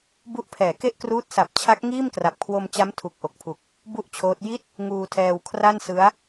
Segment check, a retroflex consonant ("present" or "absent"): absent